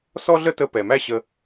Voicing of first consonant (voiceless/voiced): voiceless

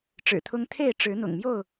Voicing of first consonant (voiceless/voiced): voiceless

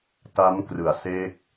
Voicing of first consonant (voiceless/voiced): voiceless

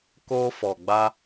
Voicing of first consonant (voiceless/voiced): voiceless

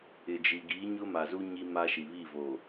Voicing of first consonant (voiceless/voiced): voiced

